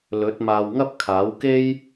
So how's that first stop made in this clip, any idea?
plain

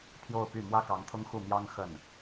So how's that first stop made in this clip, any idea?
aspirated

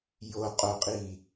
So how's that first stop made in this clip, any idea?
ejective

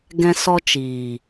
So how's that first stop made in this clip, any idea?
plain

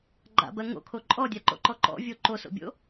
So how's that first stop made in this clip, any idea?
click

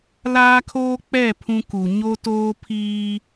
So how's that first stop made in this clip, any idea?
aspirated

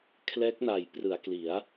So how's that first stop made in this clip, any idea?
aspirated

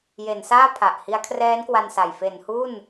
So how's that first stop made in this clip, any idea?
aspirated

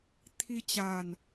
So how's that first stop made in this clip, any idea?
aspirated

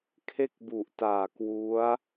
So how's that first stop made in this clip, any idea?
aspirated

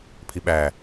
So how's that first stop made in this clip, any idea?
aspirated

